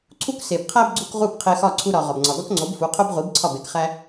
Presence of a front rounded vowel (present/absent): absent